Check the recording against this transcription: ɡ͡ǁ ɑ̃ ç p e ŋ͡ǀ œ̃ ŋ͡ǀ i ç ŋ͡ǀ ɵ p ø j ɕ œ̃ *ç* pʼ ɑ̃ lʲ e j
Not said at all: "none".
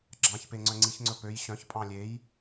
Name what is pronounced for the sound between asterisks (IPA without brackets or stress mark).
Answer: ç